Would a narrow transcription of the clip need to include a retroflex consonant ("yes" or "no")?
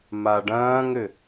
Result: yes